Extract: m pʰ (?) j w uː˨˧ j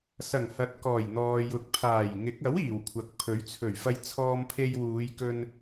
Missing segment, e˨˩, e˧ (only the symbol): e˧